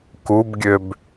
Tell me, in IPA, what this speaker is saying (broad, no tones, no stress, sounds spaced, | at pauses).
k u b ɡʲ ø b